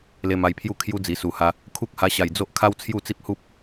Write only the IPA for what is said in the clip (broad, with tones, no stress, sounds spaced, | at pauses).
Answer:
l e˧ m a˧ j pʰ j u˥˧ kʰ j u˦ d͡z i˨˩ s u˨˩ h a˧ | kʰ u˦ k̚ h a˧ ɕ a˨˩ j d͡z o˦ ʔ kʰ a˦ w t͡sʰ j u˥˧ t͡s i˦ p̚ h u˦ p̚